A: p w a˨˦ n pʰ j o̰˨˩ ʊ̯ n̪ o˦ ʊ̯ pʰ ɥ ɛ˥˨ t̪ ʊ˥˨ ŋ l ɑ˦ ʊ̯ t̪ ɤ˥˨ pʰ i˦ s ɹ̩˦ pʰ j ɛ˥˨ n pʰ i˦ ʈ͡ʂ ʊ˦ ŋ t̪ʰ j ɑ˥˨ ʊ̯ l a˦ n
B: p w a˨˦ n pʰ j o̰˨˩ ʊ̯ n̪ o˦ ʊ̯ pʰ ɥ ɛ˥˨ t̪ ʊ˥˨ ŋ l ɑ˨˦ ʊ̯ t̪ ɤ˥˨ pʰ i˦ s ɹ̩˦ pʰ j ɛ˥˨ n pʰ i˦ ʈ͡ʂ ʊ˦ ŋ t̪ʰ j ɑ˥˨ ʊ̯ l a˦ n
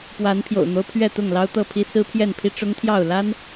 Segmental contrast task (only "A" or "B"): A